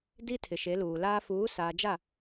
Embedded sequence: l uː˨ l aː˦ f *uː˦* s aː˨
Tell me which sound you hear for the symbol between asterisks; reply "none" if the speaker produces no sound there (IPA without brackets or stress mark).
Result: uː˨˦